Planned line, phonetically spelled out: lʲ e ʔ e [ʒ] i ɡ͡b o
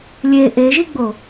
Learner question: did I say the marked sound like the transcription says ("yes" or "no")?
yes